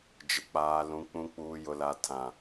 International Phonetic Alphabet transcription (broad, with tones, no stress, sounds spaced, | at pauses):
d͡ʒ ɪ˨ k͡p aː˨ l ũ˨ k͡p ũ˨ k͡p uː˨ j ʊ˨ l a˨ tʰ ã˨